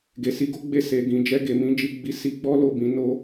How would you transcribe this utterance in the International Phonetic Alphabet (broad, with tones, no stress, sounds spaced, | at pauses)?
ɡ e˨ s i˨˦ ɡ o˦ ɡ͡b e˦˨ s e˨ ɡ ĩ˨ d͡ʒ ɛ˧ ɡ e˨ m ĩ˨˦ d͡ʒ i˧ ɡ͡b i˦ s i˧ ɡ͡b ɔ˦ l o˦˨ b ĩ˨˦ n o˦